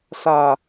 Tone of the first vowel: low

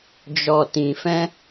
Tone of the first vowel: low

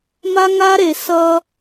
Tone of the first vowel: high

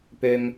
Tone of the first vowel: low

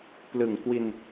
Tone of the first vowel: low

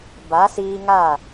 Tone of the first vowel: rising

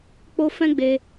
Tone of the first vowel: high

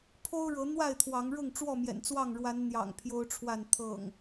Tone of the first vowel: high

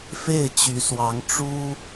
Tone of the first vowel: falling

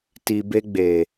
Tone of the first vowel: low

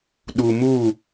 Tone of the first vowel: low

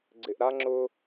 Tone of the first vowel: low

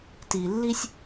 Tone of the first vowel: low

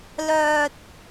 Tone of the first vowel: low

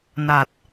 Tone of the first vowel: low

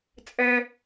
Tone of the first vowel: high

